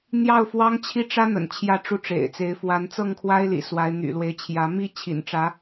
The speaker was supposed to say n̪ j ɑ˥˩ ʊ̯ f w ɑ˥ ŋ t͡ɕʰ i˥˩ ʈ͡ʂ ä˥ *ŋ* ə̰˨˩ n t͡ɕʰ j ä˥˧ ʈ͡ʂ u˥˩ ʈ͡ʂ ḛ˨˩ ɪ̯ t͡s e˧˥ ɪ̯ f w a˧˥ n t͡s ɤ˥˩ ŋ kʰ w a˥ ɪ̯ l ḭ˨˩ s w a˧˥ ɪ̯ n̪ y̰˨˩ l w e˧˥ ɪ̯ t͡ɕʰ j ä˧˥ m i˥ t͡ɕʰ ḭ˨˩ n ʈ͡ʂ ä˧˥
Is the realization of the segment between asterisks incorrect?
yes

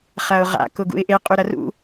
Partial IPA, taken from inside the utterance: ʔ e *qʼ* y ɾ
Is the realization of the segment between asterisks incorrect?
no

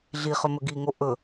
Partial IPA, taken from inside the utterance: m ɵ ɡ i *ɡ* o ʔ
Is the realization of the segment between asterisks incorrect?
yes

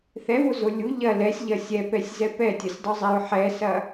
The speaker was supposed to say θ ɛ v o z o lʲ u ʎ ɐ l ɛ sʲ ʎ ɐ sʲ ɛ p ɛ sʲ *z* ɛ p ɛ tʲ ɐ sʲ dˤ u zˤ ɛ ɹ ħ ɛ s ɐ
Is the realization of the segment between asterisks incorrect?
no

